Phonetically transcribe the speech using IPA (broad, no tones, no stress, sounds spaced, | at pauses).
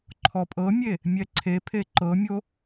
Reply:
ǃʰ ɔ pʼ ɤ mʲ e | mʲ ɛ ǀʰ e pʰ e ǃ ɤ mʲ o